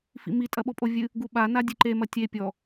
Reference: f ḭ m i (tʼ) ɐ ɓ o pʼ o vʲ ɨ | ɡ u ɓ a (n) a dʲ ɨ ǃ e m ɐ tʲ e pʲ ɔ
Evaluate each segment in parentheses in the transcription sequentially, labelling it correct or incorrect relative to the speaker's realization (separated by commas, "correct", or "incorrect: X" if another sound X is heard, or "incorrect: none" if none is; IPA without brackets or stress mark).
correct, correct